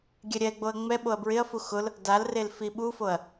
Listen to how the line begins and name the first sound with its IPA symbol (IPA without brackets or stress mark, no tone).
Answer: ɡʲ